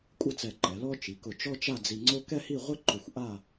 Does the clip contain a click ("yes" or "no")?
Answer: yes